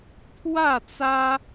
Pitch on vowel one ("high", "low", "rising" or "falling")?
falling